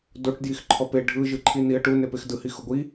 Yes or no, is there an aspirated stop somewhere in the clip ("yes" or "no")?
yes